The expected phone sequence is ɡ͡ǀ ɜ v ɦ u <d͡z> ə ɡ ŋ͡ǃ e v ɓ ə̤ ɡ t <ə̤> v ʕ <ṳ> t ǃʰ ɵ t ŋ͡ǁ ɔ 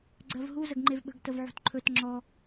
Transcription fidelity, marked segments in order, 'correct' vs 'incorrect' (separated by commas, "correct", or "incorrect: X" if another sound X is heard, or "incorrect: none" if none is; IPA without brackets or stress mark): incorrect: z, incorrect: ə, correct